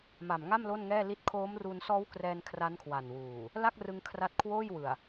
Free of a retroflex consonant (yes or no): yes